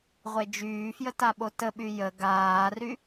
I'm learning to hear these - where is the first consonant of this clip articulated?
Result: uvula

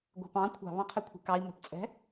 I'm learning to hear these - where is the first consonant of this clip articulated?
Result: velum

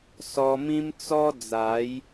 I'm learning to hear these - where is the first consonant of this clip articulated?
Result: tongue tip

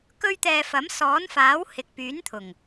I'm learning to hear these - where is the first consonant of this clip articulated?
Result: velum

